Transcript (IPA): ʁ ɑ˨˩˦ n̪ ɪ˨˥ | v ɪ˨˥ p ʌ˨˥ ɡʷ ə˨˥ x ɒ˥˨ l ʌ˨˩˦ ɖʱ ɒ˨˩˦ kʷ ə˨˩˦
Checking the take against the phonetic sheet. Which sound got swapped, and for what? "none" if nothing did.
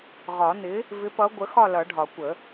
ɑ˨˩˦ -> ɒ˨˩˦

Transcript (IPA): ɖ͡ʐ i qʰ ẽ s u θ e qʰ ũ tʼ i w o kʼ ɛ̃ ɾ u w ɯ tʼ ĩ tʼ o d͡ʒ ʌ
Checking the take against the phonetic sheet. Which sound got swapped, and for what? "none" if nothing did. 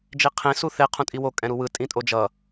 ɖ͡ʐ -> d͡ʒ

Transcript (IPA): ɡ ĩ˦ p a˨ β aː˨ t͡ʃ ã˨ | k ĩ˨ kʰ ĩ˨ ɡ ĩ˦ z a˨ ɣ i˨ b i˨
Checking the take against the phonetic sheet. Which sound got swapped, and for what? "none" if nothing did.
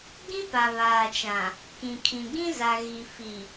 b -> f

